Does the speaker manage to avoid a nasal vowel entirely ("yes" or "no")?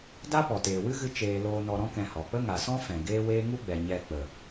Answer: no